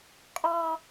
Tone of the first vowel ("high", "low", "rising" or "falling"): low